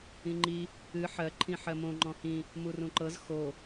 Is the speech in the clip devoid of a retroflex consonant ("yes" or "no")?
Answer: yes